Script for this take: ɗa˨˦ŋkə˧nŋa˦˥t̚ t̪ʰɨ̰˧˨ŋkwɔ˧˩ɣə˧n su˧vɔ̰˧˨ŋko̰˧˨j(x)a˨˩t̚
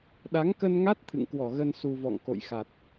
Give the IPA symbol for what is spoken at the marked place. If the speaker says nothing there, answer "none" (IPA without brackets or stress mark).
x